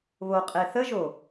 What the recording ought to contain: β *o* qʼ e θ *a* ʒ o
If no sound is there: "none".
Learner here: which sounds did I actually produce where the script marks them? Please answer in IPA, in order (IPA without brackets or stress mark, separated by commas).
o, ə